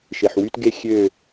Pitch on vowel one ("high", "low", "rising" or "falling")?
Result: low